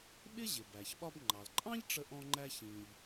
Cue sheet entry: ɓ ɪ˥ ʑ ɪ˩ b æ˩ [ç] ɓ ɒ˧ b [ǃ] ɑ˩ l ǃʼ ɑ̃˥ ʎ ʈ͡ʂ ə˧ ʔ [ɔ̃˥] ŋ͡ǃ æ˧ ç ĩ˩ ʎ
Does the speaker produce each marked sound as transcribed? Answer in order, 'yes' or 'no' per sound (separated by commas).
yes, no, no